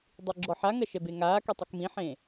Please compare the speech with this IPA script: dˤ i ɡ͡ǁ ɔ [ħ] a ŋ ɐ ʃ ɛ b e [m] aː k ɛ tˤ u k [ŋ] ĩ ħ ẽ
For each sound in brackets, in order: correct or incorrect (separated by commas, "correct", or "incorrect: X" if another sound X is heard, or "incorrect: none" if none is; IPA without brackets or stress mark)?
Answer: correct, incorrect: ŋ, incorrect: m